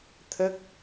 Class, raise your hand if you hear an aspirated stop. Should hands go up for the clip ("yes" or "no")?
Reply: yes